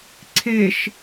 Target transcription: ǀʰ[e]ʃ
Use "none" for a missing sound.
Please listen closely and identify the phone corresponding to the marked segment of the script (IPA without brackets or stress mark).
e